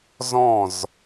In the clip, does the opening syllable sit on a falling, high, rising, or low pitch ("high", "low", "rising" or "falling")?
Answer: falling